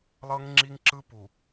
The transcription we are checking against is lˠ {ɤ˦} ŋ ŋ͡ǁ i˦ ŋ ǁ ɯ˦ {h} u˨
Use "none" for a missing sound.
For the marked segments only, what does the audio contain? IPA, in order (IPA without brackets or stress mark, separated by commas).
ɤ˦, p